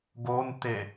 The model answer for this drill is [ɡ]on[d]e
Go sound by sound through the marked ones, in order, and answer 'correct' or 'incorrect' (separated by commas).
correct, incorrect